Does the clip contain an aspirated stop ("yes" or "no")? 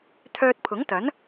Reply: yes